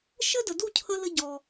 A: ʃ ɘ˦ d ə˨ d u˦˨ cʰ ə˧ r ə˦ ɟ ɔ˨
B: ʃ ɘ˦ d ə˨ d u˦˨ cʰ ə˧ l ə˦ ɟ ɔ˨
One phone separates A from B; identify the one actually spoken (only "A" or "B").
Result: B